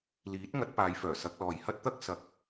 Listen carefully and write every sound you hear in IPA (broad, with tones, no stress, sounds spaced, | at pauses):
l iː˨˥ t̚ ŋ ɐ˨˥ t̚ p aː˨˧ j f œː˨˩ s ɐ˧ k̚ l ɔː˨ j h ɐ˥ t̚ t̪ ɐ˥ k̚ s ɐ˧ k̚